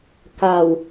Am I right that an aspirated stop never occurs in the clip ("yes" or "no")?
yes